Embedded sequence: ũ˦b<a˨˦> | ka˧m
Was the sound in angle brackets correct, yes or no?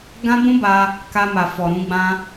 no